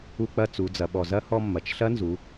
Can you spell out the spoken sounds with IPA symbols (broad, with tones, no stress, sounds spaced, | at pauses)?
u˧ k͡p ɐ˧ t͡s u˩˧ d͡z ɐ˩˧ ɓ ɔ˩ z ɐ˧˥ h ɔ˧ mː ɐ˩ t͡ʃ ɬ ɐ˧˥ n z u˩˧